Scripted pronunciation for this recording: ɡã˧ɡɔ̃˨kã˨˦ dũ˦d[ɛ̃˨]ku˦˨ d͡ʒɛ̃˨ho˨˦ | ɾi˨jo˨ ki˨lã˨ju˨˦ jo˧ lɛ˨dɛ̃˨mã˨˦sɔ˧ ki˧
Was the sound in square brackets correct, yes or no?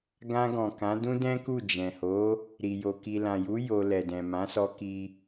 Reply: no